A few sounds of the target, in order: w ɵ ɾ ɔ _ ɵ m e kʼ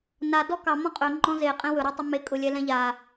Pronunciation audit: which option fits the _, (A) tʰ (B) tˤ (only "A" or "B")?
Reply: B